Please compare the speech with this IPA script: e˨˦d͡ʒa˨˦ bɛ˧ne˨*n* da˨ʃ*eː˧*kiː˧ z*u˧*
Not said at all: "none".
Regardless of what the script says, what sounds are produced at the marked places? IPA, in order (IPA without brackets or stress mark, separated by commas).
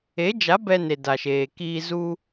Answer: none, eː˨, u˧